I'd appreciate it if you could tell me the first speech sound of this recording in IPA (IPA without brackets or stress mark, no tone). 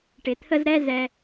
ʈ